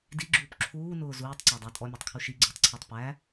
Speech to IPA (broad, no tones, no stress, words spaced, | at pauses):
diɡ͡ǁuːp ǁʰuːnʊː zuːtˤǀædˤæ tʼɔmʲætˤkʰu ʃiɡ͡ǀʊːtˤǀʰɑtˤ pæ